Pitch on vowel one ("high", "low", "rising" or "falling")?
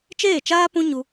falling